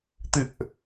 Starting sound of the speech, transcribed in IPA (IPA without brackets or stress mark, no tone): t̪